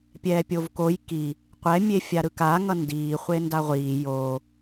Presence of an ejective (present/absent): absent